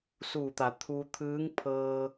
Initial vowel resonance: oral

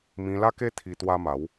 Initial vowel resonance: nasal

